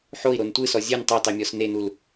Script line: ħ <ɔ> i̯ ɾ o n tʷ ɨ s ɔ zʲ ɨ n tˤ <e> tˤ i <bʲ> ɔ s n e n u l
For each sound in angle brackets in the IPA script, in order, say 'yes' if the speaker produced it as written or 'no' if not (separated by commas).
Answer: no, no, no